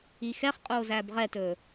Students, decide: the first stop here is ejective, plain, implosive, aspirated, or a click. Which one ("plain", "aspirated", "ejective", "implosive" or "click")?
ejective